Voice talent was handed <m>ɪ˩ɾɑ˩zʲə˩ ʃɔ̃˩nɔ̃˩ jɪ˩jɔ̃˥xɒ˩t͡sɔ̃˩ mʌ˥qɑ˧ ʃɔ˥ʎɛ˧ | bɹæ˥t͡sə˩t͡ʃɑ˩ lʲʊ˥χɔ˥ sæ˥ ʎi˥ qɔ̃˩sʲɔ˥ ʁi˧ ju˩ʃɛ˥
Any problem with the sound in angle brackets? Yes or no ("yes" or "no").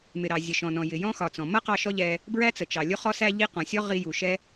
no